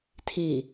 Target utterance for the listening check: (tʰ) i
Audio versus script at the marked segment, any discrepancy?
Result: no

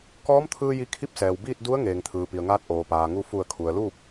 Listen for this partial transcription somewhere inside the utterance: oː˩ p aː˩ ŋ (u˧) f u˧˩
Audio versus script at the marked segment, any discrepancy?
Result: no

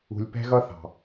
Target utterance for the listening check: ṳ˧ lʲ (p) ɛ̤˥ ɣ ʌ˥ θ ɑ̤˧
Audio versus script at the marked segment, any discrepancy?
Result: no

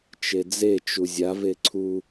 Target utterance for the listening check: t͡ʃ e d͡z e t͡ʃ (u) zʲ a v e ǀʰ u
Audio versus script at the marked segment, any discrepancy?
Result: no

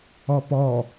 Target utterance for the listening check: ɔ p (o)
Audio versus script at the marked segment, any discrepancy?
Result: yes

